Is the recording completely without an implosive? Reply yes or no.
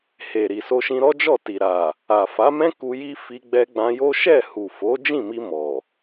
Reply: yes